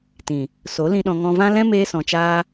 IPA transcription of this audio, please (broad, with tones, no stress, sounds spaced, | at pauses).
t ĩ˨ | s o˨˦ l ĩ˧ ɗ ɔ̃˧ ŋ ɔ̃˧ v ã˦ l ɛ̃˦ m eː˧ s ɔ̃˨ t͡ʃ aː˧